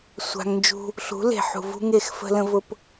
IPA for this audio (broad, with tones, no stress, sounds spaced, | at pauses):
sʷ a̤˧ ŋ n d͡ʒ ṳ˦ | ɬ ṳ˨˦ l e̤˨ ħ ṳ˨ v ṳ˦ ŋ e˦˨ x f ə̤˦ l ə̃˦ v ʊ˦ p